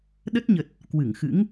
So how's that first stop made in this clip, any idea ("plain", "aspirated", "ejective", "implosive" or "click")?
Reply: implosive